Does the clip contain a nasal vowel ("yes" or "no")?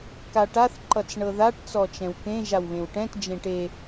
yes